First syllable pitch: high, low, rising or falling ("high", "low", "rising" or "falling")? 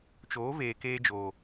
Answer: rising